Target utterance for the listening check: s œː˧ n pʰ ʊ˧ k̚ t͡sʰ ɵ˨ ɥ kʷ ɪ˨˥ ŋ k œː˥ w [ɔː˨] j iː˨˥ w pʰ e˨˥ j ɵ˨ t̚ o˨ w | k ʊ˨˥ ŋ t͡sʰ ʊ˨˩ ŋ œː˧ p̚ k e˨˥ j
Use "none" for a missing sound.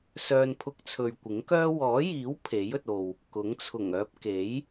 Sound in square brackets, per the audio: ɔː˨˥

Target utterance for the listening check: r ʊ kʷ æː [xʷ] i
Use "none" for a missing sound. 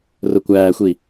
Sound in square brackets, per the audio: xʷ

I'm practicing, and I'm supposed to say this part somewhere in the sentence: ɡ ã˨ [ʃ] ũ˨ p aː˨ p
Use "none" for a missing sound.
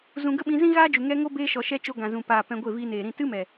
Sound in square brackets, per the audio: z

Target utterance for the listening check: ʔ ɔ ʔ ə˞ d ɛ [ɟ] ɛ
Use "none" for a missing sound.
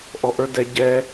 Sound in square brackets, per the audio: ɟ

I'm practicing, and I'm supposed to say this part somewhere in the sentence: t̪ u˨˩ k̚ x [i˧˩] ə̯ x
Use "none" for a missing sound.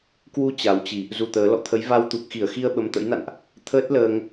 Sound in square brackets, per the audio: i˧˩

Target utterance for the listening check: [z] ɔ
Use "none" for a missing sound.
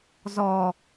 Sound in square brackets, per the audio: z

